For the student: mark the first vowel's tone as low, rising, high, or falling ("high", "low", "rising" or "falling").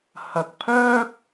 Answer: low